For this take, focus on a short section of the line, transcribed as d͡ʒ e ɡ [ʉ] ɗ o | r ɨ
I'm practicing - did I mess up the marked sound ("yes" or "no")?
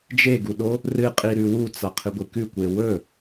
yes